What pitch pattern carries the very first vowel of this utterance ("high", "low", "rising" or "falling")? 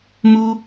high